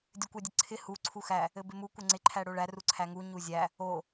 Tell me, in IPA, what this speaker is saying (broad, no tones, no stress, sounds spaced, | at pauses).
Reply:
dʲ ɘ kʷ æ dʲ ɘ ǀʰ ɪ h u ǀʰ u x æ | ɘ b ɪ m u kʷ ɘ ŋ͡ǀ ɪ ǃʰ æ ɽ o ɭ æ r u ǀʰ æ ŋ u ɲ u zʲ æ | o